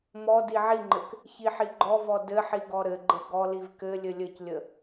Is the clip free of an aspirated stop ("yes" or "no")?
yes